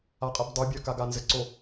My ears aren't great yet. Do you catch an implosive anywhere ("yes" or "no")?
no